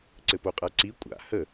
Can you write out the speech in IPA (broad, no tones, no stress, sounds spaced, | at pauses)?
ǀ ɘ p o qʼ a ǀ i kʷʼ a̰ h ə